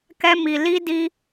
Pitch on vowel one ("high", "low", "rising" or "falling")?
high